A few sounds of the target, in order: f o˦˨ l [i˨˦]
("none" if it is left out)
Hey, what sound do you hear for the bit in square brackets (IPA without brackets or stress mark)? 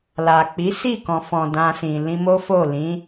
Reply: ĩ˨˦